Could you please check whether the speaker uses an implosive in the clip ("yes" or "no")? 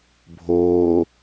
no